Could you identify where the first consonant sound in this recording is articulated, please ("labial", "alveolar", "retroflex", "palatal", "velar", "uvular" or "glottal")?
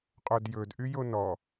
uvular